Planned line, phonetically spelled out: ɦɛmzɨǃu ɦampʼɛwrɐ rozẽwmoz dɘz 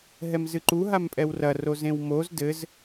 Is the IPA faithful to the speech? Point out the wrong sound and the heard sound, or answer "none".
none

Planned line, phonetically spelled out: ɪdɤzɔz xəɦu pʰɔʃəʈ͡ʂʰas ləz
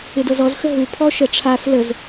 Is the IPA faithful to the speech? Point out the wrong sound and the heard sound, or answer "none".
none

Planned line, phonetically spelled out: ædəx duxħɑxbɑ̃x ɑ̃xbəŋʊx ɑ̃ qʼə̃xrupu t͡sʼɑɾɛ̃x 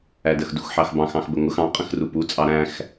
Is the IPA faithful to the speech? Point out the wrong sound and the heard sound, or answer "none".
ɛ̃ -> æ̃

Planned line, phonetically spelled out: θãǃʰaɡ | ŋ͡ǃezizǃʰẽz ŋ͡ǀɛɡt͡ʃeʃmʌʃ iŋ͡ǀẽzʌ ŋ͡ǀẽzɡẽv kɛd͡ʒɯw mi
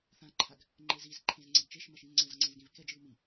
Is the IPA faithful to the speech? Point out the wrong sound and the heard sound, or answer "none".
none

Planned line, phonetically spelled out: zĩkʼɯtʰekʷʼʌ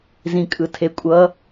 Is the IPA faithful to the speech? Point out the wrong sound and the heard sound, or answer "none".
none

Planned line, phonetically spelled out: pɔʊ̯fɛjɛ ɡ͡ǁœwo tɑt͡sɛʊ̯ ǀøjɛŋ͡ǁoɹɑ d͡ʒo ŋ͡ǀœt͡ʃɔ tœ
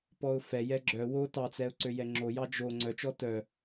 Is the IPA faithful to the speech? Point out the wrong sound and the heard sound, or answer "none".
ɹ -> j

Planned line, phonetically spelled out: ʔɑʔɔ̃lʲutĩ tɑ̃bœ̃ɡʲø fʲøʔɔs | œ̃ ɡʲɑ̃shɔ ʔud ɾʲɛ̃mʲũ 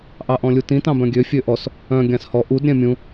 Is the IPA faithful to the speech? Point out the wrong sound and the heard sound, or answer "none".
none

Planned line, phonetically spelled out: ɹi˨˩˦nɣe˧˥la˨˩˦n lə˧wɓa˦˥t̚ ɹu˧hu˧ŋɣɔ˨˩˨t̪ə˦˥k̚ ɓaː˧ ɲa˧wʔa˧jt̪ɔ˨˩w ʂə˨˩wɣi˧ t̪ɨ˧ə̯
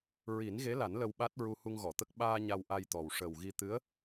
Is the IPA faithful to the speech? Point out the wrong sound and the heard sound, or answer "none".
ɨ˧ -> ɨ˧˥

